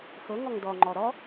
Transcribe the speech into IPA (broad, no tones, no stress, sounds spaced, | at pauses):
x ɤ ŋ ɔ ŋ d ɔ ŋ͡ǃ ɔ ɾ ɔ